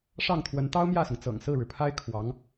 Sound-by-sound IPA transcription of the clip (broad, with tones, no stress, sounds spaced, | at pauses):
ʂ ɑ˥˩ ŋ t̪ʰ w ə˧˥ n t̪ ɑ˥ ʊ̯ m j ä˥˩ s ʊ˩ ŋ t͡s ɤ̰˨˩ ŋ s ɹ̩˥˩ ɻ ɻ̩˩ pʰ a˥ ɪ̯ kʰ w ɑ˧˥ ŋ